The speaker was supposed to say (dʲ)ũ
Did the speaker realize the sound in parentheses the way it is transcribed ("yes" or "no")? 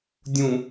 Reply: yes